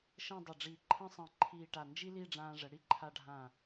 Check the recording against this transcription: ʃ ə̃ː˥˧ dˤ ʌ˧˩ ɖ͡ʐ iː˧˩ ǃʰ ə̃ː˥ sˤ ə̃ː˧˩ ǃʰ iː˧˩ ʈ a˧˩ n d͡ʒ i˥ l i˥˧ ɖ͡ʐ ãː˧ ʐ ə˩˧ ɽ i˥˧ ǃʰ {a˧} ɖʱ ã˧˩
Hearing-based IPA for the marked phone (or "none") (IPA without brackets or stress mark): a˧